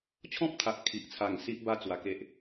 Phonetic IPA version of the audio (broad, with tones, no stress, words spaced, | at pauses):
t͡ɕʰɔ̃˦p̚t̪ʰa˨ʔkʰi˨ʔt͡sʰa˨˩ŋ si˦ʔba˥˧ t͡swa˧ke˦ʔ